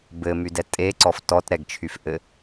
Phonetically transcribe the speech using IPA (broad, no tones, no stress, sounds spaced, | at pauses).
b ɘ m y d ɛ tʼ e ǀ ɔ f t ɔ t ɾ ɛ ɡ t͡ʃʰ y f ʔ ɘ